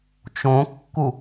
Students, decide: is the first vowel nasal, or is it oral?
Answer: nasal